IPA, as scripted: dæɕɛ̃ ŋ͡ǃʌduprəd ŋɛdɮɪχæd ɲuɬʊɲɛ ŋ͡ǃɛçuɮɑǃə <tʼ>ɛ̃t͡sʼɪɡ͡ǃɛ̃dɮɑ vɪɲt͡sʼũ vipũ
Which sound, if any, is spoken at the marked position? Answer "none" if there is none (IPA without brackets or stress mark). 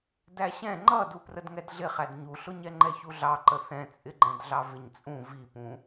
θ